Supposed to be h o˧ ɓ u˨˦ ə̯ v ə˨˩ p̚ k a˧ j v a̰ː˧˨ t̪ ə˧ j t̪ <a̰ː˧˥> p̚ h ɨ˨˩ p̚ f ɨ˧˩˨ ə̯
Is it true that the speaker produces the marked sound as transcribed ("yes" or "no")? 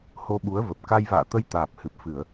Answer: no